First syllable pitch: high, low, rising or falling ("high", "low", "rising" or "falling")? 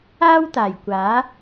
high